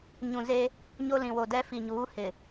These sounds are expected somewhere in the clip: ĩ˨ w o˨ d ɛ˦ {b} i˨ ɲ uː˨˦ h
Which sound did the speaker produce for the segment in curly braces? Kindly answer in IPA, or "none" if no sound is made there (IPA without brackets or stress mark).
f